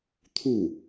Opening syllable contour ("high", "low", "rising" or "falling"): falling